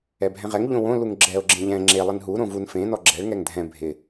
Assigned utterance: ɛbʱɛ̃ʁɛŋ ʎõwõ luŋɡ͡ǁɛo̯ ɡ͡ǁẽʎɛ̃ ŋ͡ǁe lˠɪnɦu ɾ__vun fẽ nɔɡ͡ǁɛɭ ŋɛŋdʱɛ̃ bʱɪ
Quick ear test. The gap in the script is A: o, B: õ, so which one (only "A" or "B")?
B